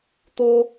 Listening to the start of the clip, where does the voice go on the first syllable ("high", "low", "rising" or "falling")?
high